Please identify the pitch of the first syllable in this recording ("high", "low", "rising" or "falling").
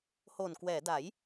low